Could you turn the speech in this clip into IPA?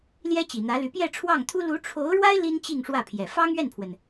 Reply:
ljɛ˥t͡ɕi˨˩n̪ä˧˥ly˧˥ pjɛ˥˧ʈ͡ʂʰwɑ˥˩ŋt̪ʰu˥ lu˧˥ʈ͡ʂʰo˧˥ʊ̯ɻwa˥ɪ̯ li˥nt͡ɕi˥˧ŋʂwä˥˩pʰjɛ˨˩ fɑ˥ŋɥɛ˥˩npʰwə˩n

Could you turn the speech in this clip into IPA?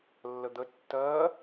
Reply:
lːəd̪ə tːɜː

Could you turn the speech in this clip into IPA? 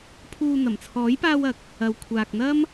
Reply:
pʰuː˧ n̪ɐ˨˩mt͡sʰɔː˨˥jpaː˧wɐ˨˥k̚ | ɐ˨wkʷʰaː˨k̚n̪ɐ˥m

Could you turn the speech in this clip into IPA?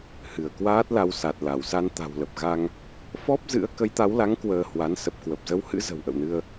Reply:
hɨ˧˩ə̯kwaː˦˥t̚la˧w sa˨˩t̚la˧˩wsa˧n t̪a̤˨˩wlə˨˩p̚ɣa˧ŋ | fɔ˦˥p̚zɨ̰˧˥ə̯ kə˨˦jt̪a˨˦wla˨˦ŋ kwəː˧hwa˨˦n sə˨˩p̚kwə˨˩p̚zə˨˦whɨ̰˧˥ zə̤˨˩w ʔə̰˧˨wnɨ˧ə̯

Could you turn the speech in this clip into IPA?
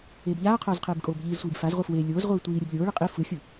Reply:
eːbʎaːqʰoːz qʰeːbkʼoːbʎiːzsʷiːb fazʁʷɯ fwe lʲoːz ʁʷɯːtʷiːɾʲɯb lʲoːɭɯ qʼi fɯxʲɯ

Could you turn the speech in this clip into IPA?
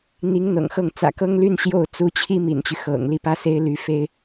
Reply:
n̪i˧˥ŋ n̪ɤ̰˨˩ŋxɤ˥˩ŋ t͡sä̰˨˩kɤ˥ŋly˥n ɕjo˥˩ʊ̯ t͡su˧˥t͡ɕʰi˥ mḭ˨˩nt͡ɕy˦ xɤ̰˨˩ŋ li˥˩pä˥se˥ɪ̯ ly˧˥fe˥ɪ̯

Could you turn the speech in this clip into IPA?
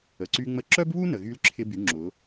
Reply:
ə˩ǀy˧ŋ͡mə˧˥ ǁœ˥bβu˥ nə˩ɣy˧˥lǁʰɪ˧by˩˧ ŋ͡ǁʊ˩˧

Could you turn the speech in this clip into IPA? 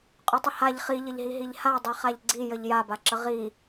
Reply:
qʼʉtˤəhaʎ χiʎəʎɦiɦiʎ hadˤi χaʎɡ͡ǀijəʎ jabaǁə ʁi

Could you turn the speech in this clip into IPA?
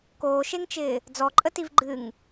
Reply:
koːʃeŋt͡ʃɪː | d͡zɔǃʼətiv ɡ͡ǃɨŋ

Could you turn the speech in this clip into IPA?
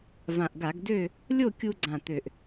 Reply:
vã˨˩ʔɡa˧˩˧ɡdø˥˨ | lʲo˥˨kʲu˧ɡ͡ǀã˨˩t̪ø˨˩ʔ

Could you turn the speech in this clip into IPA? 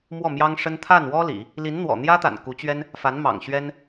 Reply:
mwɔ˥˩mjɑ˥ŋʂə˥n t̪ʰa˥˩nwɔ˥ lḭ˨˩˦ | li˧˥nn̪wɔ̰˨˩n̪jä˥t̪a̰˨˩n ku˧˥t͡ɕɥɛ˥n | fa˧˥nmɑ̰˨˩ŋɕɥɛ˥n

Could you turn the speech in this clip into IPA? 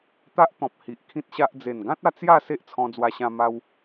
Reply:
t̪a˦ʔt̪ɔ̃˨p̚ hi˨ʔkʰĩ˦t̚ɕa˦ʔ d͡ze˨˩nɡã˦t̚a˧ t͡sja˥˧ se˦ʔt͡sʰɔ̃˧d͡zwa˧ɕã˧ ma˧w

